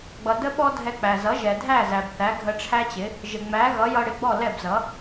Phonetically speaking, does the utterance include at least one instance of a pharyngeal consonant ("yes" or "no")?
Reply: no